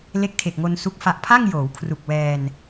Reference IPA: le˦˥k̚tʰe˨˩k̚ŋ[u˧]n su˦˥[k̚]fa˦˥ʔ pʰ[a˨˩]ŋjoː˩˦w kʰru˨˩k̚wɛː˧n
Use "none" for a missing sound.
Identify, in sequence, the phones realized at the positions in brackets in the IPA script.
o˧, k̚, a˥˩

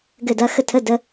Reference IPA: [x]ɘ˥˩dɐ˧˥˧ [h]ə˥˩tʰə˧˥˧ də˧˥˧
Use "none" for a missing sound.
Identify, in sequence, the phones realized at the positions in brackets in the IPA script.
ɡ, x

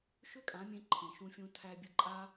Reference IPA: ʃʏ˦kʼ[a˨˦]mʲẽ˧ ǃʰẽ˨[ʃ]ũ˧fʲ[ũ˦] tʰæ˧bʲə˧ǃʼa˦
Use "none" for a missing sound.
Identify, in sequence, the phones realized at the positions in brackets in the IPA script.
ã˨˦, ʃ, ũ˧

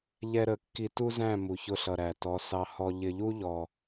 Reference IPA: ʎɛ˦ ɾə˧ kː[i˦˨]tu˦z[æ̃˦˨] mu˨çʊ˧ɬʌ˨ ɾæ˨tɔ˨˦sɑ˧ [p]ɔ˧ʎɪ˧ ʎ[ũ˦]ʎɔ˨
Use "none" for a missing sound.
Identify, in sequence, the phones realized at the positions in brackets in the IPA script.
i˧, æ̃˦˨, h, u˦

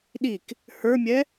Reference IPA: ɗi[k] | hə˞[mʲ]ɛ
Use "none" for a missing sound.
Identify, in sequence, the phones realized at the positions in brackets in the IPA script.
k, mʲ

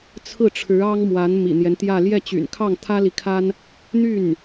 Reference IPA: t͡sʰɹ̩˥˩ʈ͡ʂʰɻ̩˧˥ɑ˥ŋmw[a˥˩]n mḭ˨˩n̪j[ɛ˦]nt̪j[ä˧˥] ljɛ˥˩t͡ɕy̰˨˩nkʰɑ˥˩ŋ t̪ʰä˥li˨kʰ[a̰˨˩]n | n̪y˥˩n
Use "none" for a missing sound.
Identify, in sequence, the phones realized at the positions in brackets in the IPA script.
a˧˥, ɛ˦, ä˥˧, a˥

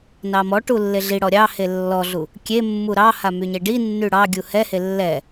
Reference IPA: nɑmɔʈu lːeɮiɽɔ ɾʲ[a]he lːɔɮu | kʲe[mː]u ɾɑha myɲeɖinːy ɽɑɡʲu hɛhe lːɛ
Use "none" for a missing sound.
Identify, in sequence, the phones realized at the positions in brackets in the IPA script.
ɑ, mː

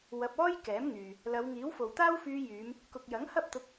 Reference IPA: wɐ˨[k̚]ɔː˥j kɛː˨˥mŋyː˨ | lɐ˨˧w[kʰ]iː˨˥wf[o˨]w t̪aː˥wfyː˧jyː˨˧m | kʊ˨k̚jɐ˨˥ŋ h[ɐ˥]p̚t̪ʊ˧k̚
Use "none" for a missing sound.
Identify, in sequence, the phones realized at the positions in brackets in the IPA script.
p̚, ŋ, o˨, ɐ˥

